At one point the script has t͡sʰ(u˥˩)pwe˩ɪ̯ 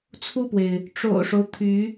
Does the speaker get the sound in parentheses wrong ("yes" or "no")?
no